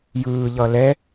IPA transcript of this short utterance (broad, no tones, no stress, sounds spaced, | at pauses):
j ɯː ʎ ʌ l ɛ